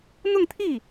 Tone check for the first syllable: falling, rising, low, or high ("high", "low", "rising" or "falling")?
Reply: falling